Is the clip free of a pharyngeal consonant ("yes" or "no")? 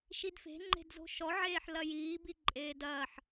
no